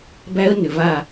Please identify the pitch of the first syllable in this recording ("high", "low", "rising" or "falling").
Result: high